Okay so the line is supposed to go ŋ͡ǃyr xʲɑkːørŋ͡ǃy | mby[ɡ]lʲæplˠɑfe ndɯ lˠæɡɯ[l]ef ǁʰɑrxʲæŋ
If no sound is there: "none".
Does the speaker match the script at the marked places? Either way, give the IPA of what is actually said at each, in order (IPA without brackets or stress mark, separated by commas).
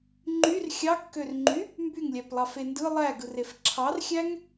ŋ, r